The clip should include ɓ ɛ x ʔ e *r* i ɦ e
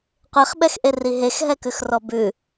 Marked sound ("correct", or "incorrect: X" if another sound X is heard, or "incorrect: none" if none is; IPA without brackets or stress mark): correct